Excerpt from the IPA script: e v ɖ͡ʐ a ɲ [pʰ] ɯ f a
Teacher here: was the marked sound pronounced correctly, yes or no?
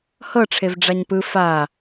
no